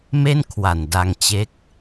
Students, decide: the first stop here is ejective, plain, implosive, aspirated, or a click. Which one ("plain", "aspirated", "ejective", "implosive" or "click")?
aspirated